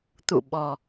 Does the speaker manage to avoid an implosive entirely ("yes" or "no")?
no